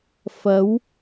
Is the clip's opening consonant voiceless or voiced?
voiceless